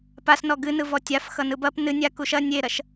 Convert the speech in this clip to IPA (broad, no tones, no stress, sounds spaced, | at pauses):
p a s n ɔ ɡ ɨ n ɯ v ɔ tʲ a f x ʌ n ɯ b ɐ p n ɨ nʲ a k u ʃ ɐ nʲ e ɾ ɐ ʃ